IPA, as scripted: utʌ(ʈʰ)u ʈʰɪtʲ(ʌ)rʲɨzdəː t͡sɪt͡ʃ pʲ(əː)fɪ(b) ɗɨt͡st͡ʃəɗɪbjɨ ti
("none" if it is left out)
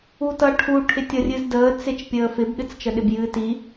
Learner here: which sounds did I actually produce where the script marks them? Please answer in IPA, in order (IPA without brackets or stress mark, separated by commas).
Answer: ʈʰ, ʌ, əː, b